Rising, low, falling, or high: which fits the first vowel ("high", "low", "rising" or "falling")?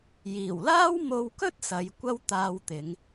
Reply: low